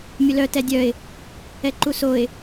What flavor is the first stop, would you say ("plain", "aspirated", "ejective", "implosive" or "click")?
plain